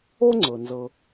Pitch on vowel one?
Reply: high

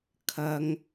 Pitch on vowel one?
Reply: high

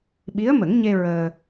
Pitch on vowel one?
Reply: rising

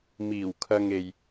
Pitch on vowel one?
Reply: low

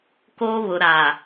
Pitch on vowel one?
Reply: high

